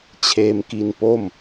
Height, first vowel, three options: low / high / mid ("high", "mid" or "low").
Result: mid